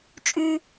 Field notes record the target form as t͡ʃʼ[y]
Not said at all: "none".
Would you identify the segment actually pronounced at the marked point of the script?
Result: y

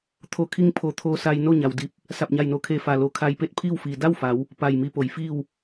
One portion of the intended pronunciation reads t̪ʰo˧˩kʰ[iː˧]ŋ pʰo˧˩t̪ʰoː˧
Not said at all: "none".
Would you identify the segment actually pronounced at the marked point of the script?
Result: i˧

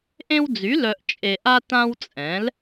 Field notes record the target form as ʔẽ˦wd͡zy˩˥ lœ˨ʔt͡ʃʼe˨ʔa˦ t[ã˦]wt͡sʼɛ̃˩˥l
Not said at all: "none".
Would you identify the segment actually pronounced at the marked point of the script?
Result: ã˦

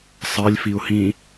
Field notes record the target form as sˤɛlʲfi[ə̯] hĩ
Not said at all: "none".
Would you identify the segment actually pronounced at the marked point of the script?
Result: ʊ̯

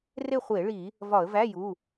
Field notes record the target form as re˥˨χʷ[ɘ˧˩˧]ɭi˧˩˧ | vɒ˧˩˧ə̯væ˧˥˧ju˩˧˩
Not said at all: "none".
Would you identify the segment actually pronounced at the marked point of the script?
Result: e˧˩˧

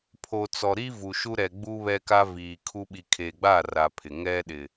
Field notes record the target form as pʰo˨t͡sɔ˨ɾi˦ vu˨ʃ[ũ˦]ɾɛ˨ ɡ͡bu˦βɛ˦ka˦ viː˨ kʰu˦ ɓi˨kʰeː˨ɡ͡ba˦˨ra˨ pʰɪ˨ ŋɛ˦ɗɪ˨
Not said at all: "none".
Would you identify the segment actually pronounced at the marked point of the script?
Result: u˦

